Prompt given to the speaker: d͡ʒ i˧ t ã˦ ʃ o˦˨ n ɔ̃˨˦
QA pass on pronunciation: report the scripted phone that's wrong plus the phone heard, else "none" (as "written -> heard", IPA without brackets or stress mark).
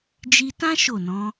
none